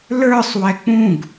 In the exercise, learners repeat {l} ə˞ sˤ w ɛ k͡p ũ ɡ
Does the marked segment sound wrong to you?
no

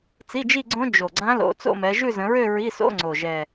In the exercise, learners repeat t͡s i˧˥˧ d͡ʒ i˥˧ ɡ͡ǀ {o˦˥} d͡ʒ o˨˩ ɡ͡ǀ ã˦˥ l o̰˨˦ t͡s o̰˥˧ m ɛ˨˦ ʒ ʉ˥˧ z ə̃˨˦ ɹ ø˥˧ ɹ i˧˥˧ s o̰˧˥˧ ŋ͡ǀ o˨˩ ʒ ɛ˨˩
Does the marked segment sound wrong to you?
yes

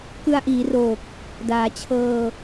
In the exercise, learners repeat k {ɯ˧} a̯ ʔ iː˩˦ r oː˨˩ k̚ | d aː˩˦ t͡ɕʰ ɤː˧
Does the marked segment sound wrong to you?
no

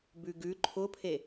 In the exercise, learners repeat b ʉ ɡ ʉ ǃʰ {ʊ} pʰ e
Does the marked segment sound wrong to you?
no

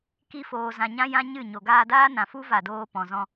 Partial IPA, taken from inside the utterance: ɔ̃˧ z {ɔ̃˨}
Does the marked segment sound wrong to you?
yes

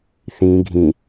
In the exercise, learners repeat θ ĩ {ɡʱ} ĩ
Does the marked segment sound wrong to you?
no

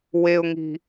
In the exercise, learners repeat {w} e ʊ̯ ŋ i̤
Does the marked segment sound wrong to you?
no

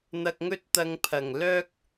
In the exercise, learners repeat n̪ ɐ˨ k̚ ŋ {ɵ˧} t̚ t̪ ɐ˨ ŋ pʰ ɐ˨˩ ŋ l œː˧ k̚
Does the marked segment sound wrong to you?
no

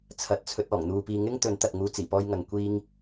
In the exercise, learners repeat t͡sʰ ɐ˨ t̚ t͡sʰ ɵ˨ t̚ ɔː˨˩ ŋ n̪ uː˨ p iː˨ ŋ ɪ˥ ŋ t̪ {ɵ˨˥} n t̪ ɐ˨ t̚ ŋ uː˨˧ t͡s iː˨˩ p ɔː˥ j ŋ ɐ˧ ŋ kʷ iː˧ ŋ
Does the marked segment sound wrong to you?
no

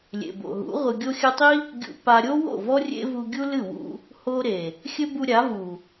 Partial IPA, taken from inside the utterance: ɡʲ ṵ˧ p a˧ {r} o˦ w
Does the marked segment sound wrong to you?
yes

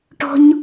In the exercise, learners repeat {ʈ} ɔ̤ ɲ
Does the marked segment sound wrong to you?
no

